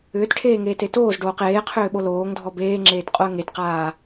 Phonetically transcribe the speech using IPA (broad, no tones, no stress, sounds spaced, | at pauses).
ʏː t ʈʰ eː ŋ eː t e t oː z ɖ oː q eː qʰ ʏː ɓ o l oː ŋ dʱ ɔ b eː ŋ͡ǁ eː t qʼ o ə̯ ŋ e t q aː